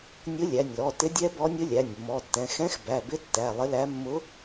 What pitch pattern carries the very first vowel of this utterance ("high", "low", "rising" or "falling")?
rising